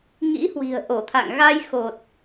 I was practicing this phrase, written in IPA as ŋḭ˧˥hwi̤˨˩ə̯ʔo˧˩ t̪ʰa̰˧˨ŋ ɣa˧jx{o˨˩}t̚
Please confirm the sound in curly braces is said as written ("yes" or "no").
yes